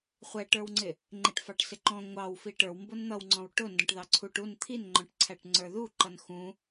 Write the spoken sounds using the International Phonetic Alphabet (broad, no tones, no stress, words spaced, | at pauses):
χʷɛʈə˞wŋ͡ǀɪ | ŋ͡ǃɪʈfɑʈ sɪǃɔ̃ ŋʷɑwfi ʈə˞wmbʊn n̪ʌwŋ͡ǀɔ̃w ʈʊ ndɔ̃ʈðɑǀʰuʈ un t̪ʰinŋ͡ǃɔ̃ʈǀʰæʈ ŋ͡ǀə˞ðuǃʌn xũ